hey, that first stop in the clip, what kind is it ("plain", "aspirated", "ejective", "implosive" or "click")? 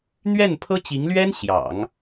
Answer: aspirated